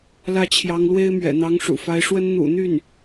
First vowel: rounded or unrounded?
unrounded